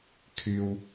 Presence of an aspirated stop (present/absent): present